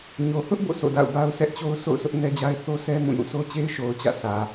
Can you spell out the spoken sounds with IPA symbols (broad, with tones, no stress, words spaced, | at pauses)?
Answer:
ɲo˨hʊ˦ʔ bo̰˦˨sʰo̰˦˨da̰˦˨ʊ̯ ba˦ʊ̯sɛ˦ʔt͡ɕo˦ʊ̯ so̰˦˨ʊ̯sʊ˦ʔnɛ˦d͡ʑa˦ɪ̯ θo˦sɛ˦ mũ˦˨jũ˦˨ so˦t͡ɕe˦ɪ̯ʃo˨ʊ̯ t͡ɕä̰˦˨ sʰä˨